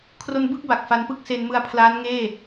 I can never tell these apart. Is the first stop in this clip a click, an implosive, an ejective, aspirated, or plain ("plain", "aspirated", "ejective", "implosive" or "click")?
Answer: aspirated